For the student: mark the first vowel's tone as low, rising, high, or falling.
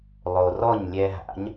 low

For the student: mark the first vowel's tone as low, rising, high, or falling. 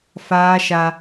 high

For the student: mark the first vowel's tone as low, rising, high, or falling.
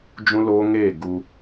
high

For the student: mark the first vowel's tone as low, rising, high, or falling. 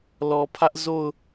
low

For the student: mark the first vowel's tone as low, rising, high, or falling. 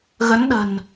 rising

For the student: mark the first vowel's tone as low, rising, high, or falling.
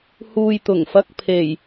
low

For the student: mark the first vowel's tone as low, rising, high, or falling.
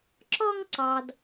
high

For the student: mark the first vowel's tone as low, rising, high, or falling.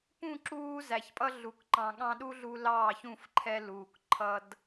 falling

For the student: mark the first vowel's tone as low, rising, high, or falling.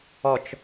low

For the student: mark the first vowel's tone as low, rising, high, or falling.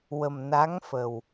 low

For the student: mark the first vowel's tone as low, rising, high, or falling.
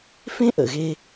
high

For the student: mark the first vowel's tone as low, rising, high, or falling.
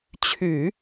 low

